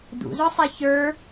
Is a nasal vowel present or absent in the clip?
absent